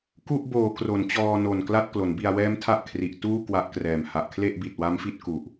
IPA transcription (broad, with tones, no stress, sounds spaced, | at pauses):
k u˥˩ ʔ b oː˨˩ k r o˩˦ n t͡ɕ ɔː˧ n o˨˩ n k l a˥˩ t̚ k l o˩˦ n b i˧ a̯ w ɛː˦˥ m tʰ a˦˥ ʔ kʰ r i˨˩ ʔ t uː˥˩ k w a˦˥ ʔ k r ɛː˨˩ m h a˨˩ ʔ kʰ l e˥˩ ʔ b i˨˩ t̚ w a˦˥ m f i˦˥ t̚ k u˨˩ ʔ